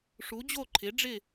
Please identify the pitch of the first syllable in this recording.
rising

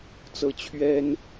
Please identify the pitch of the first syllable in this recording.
rising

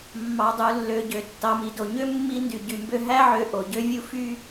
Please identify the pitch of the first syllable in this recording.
low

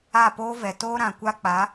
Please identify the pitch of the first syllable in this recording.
falling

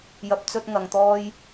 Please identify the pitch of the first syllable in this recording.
high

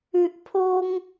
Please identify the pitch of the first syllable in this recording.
high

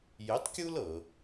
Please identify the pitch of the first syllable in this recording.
rising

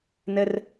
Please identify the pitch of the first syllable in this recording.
low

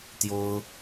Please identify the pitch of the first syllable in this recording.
high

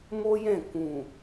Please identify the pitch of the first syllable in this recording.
high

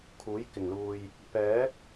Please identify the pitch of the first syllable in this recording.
rising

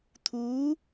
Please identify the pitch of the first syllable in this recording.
rising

